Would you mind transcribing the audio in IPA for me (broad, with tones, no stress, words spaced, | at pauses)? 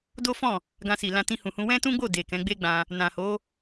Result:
do˦fɔ̃˦˨ | ɡã˧si˨lã˧ tĩ˧hũ˨hũ˧ wɛ̃˦tũ˦ɡ͡bo˦˨ de˨ kɛ̃˨˦ɡ͡be˦ɡ͡bã˧ | nã˨ho˨˦